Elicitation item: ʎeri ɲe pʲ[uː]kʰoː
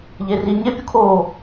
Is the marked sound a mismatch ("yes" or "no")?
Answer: yes